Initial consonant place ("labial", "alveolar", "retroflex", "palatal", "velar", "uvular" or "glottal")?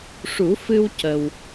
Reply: retroflex